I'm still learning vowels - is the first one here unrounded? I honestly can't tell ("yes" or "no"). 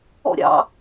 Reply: no